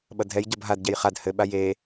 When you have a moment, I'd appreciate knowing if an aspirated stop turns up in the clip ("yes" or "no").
no